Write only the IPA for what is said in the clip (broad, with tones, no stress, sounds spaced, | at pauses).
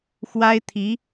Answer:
x w a˥ ɪ̯ t̪ʰ i˧˥